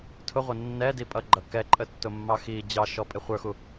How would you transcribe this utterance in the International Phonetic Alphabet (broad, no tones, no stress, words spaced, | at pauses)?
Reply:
tʰʊʁʷə nːɛdipʼʌɡ͡ǃʌ kɛǃʼətːʊmːɑ xi d͡ʑɑʃɔpʼɪ χʷə˞xu